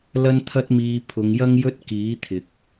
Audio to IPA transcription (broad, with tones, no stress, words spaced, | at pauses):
lɐ˥nt̪ʰɐ˥t̚miː˧ pʰʊ˨˧ŋjɐ˥ŋjɵ˥t̚ kiː˨˥t̪ʰɪ˨k̚